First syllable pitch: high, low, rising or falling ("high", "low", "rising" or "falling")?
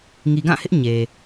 low